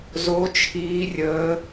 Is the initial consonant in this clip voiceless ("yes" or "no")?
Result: no